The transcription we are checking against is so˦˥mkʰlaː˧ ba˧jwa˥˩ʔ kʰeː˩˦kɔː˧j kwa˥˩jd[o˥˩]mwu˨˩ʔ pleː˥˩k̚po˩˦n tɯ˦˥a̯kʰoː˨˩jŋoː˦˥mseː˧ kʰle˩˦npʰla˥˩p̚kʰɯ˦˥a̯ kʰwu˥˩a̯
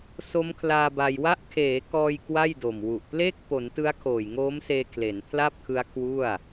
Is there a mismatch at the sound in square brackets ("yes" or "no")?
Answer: yes